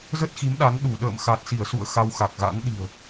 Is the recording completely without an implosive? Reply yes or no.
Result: no